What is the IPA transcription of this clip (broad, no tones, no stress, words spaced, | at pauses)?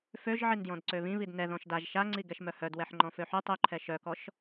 føʒʕindjɔ̃d ǀøβĩβid nɛ ðɔ̃ʃdaʒ ʃaŋ͡ǀi ɡɛʃmœhœdwɛħ ŋ͡ǃɔ̃føħy tˤyǃʰɛ ʃœkɔʃ